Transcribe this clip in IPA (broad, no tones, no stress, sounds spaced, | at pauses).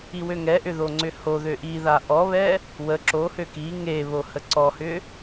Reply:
i w ø ŋ ɛ ʔ ʏ ð o ŋ͡ǀ ʏ h o ð ø ʔ i ð a ʔ ɔ β ɛ | w ə ǁ o h ø k i ŋ e β o h ə ǀ ɔ h ʏ